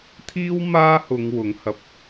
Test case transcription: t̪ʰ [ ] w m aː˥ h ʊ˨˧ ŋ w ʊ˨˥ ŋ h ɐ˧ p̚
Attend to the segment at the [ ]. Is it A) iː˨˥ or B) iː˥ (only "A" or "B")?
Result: B